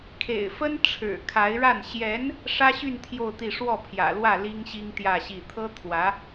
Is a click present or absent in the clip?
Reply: absent